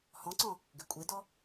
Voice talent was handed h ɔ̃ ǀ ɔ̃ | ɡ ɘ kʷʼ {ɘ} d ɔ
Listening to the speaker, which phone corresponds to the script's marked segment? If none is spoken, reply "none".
e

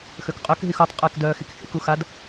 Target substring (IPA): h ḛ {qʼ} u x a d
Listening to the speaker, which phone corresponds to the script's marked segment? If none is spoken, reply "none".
k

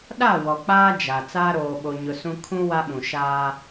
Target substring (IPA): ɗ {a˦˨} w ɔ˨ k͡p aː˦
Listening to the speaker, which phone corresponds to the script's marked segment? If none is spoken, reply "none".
a˦˨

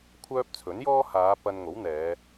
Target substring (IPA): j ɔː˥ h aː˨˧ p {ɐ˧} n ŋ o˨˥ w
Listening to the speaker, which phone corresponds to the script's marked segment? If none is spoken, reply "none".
ɐ˧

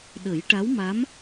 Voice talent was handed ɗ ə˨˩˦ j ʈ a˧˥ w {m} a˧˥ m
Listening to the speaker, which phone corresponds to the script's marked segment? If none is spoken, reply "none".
m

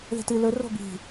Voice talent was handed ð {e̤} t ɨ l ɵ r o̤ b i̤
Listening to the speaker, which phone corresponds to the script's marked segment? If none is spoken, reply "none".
e̤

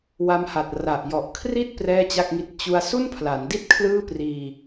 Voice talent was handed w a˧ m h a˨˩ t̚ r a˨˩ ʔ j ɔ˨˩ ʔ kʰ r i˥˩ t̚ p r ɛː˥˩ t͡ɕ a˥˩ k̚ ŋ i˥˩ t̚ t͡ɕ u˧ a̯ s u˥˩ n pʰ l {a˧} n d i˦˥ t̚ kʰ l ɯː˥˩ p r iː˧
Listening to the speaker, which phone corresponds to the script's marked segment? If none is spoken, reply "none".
a˩˦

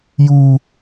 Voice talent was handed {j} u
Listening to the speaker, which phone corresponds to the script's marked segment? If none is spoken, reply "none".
j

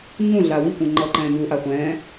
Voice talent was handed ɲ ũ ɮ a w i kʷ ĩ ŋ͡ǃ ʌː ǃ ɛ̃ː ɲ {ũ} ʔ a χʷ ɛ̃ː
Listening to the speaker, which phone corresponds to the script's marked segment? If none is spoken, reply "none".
u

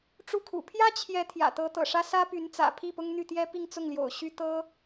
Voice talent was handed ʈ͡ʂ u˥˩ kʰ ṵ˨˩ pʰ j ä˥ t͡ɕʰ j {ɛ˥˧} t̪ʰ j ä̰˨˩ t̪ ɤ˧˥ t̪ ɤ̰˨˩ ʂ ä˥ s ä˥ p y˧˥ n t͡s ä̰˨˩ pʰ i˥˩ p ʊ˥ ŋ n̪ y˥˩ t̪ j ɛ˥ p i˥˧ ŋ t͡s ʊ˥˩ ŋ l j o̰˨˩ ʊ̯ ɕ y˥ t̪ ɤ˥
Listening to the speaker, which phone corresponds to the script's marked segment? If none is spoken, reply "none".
ɛ˧˥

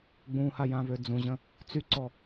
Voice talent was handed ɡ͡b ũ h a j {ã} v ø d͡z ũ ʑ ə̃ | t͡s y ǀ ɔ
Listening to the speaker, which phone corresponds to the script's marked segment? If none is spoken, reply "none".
ã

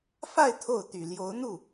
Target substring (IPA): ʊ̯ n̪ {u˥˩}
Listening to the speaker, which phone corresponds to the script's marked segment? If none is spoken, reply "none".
u˥˩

